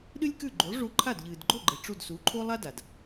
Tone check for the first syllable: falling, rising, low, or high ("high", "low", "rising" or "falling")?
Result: high